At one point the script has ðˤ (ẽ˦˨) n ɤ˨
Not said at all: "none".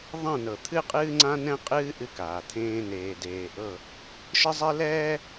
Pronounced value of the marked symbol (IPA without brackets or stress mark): ẽ˦˨